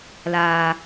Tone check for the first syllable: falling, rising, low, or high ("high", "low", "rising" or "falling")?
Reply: low